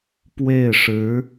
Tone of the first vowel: falling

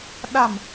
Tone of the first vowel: low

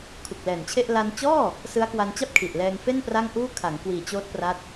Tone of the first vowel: low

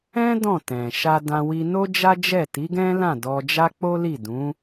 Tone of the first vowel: high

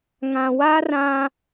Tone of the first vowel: low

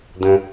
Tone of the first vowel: low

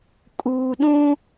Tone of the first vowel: low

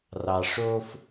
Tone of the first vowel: low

